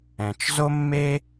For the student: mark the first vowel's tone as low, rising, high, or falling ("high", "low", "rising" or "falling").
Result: low